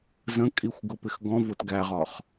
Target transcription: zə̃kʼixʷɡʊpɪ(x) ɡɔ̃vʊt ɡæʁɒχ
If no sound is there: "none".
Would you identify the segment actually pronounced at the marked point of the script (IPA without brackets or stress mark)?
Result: x